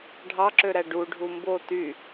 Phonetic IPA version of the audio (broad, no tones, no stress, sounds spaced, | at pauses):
ɖʱ ɑ ǁ ø ɾ æ ɖ u ɖʱ u m b o t y